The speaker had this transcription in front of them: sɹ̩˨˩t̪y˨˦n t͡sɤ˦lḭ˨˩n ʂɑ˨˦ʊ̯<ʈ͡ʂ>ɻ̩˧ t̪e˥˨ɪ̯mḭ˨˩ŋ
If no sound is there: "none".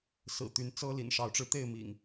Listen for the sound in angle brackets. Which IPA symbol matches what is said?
ʈ͡ʂ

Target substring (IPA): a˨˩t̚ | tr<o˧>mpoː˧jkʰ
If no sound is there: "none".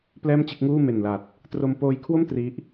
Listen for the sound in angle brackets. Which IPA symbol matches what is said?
o˧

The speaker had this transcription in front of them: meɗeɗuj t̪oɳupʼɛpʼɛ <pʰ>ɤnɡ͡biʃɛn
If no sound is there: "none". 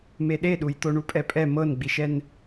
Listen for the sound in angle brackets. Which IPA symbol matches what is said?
m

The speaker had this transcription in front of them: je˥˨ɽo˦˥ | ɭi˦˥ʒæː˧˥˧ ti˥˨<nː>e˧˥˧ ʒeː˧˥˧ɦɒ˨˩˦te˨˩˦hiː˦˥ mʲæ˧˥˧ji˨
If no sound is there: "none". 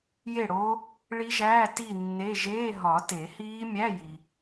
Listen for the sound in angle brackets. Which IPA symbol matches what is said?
nː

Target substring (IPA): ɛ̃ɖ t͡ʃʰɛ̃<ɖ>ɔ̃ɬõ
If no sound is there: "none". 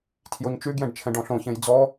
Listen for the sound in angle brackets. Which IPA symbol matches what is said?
ɖ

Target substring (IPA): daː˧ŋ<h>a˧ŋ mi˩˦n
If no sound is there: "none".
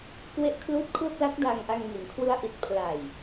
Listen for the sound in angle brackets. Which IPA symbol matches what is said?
ʔ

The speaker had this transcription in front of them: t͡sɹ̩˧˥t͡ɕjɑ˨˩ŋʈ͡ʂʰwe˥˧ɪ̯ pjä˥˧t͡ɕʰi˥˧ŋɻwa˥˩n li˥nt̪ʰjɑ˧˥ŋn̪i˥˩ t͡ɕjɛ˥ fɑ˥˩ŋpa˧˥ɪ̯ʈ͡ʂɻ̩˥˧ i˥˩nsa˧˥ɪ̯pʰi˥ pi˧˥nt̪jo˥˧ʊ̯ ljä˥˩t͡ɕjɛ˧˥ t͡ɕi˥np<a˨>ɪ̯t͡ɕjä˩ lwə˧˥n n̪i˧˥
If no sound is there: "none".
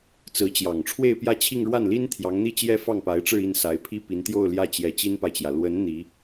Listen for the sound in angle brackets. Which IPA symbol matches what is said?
a˨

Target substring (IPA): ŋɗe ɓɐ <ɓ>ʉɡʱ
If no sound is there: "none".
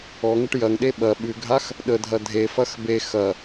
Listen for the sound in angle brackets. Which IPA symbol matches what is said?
ɓ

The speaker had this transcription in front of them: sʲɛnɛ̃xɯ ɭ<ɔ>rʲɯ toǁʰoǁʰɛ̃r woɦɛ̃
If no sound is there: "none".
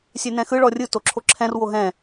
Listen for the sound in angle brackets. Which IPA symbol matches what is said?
ɔ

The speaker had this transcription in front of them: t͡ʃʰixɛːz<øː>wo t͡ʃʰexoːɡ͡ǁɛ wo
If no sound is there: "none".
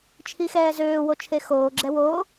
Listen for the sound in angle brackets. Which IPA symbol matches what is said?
øː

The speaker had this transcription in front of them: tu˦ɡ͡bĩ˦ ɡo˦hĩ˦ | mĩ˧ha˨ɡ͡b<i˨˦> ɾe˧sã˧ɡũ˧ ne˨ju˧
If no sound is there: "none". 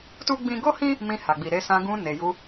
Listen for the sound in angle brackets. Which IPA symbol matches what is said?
i˨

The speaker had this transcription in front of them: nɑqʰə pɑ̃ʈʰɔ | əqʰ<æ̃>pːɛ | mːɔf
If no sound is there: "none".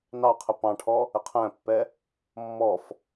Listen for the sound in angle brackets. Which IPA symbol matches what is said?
æ̃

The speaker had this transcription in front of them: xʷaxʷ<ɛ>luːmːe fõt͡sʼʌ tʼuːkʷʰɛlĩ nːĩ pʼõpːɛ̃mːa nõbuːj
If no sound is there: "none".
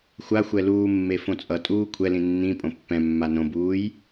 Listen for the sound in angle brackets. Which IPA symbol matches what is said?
ɛ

